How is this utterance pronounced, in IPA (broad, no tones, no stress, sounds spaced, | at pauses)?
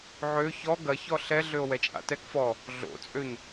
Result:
ʕ ø ç ɔ ɡ ɐ ç ɔ ɬ ɛ ɮ ø o̯ w ɛ t͡ʃʼ a̰ t ɛ k f ɔ | ɮ o̰ t͡sʼ ø ɲ